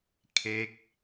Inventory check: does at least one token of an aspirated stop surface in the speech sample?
yes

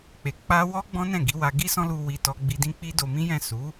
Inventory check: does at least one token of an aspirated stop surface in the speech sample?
no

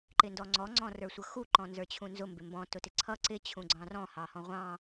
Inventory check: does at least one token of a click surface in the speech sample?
yes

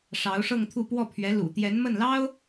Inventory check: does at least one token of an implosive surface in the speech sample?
no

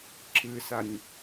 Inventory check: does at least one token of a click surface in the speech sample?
yes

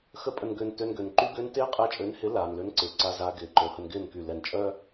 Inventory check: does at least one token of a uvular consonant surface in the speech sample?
yes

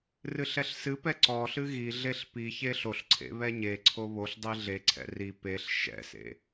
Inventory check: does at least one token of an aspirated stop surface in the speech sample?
yes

